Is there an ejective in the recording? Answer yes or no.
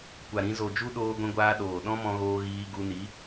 no